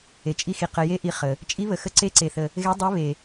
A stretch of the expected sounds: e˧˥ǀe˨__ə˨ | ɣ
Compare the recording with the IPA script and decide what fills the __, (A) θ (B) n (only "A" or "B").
A